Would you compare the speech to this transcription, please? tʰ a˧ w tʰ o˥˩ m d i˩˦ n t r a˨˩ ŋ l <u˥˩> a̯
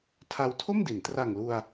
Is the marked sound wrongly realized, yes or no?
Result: yes